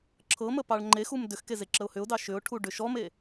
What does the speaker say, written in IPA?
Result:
ǁʰ ɤ m ə p ɑ ɭ ŋ͡ǃ e x u m d ʏ x k e z e ǁ ə ʊ̯ h ʏ ʊ̯ d ɑ ʃ ʏ ʊ̯ ʈʰ u ɖ ʏ ʃ ɔ m e

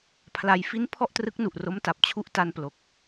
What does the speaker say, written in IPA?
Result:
pʰ l a˧ j f i˦˥ n pʰ ɔ˥˩ ʔ t r ɯ˦˥ k̚ n u˨˩ ʔ r o˦˥ m t a˨˩ p̚ t͡ɕʰ u˦˥ ʔ t a˧ n p l o˨˩ k̚

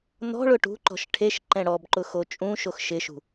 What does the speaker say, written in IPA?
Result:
n ɔ̤ ɭ ʊ ʈ ṳ ǃ ɔ̤ ʃ ʈʰ e ʃ ǃ ɛ̃ ɽ ɔ b ǃ ʊ x o t͡ʃʼ ũ ʃ o x ʃ ɪ ʃ ṳ

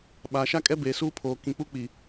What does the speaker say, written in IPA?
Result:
ɓ a˨ ʃ a˦ kʼ ɛ˦ b eː˨ s uː˦ pʰ oː˨ k ĩ˨ k͡p u˦ k͡p i˨

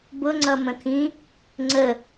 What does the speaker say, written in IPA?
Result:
b ʊ ŋ͡ǀ ʌ m ə̃ t̪ʰ ĩ | ŋ͡ǀ ə

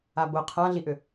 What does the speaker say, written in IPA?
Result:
a b ʊ qʰ ã ɮ i ʔ ʏ

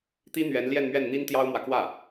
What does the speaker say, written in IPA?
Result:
t̪ i˥ n̪ ɥ ɛ˧˥ n l j ɛ˥˧ n m ɥ ɛ˥˩ n n̪ i˥ n t̪ j ɑ˥ ʊ̯ m w ä˨ k w ä˥˩

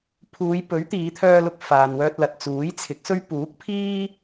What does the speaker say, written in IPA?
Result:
pʰ uː˨˧ j p ɵ˨˥ ɥ t̪ iː˨˧ t̪ʰ œː˧ l ʊ˧ k̚ f aː˨ n w œː˧ t̚ l ɐ˨ t̚ t͡s uː˨˥ j t͡sʰ ɪ˨˥ k̚ s ɵ˥ ɥ p uː˨˥ k̚ pʰ iː˥

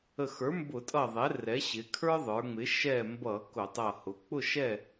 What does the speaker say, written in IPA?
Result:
ə˧˩ x ə˞˩˥ m b ʊ˧˩˧ tʼ ʌ˧˩ ðˤ ɛ˩˥ r ɛ˩˥ ɕ ɪ˩˧ kʰ ə˞˦ ðˤ ə˞˩˧ ŋ͡m ɪ˩˥ ʃ ɛ˧˩ m b ʌ˧˩˧ k ʊ˧˩˧ tˤ ʌ˧˩ h ʊ˩˥ k͡p ʊ˥˨ ʃ ɛ˥˨

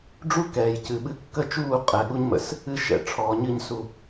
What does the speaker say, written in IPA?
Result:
ɖ͡ʐ u˦ k ɛː˨ j c ɨ˨ ɓ ɨ˧ kː ə˦ t͡ʃ uː˦˨ qʼ ɛ˨ ɠ u˧ ɲ m ə̰˨ s | ɨ˧ ʃ ɛ̰˨ ʈ͡ʂʰ ɔː˨ ɲ ɨ˦˨ ɲ s u˧

